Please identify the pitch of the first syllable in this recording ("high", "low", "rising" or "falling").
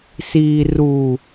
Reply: low